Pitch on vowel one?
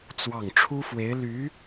falling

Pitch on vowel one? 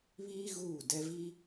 high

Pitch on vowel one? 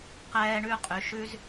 high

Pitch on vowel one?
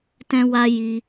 high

